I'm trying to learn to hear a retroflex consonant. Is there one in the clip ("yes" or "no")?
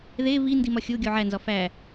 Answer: no